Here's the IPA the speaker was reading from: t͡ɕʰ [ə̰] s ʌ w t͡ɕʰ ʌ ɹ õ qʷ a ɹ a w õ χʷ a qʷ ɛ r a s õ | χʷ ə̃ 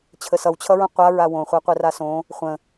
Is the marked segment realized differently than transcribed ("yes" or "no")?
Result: yes